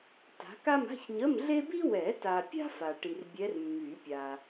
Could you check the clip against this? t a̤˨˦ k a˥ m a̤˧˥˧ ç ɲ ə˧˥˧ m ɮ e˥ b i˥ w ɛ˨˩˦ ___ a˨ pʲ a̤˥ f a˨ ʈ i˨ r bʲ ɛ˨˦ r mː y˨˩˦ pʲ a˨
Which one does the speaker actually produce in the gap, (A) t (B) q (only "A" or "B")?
A